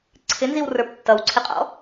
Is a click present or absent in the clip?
present